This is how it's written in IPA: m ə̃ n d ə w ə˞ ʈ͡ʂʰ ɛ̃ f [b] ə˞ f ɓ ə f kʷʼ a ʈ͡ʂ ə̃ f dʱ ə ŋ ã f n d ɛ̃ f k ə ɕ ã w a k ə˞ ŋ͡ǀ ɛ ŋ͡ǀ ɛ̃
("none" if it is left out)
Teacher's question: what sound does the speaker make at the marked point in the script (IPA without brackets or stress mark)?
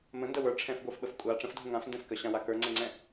ɡʷ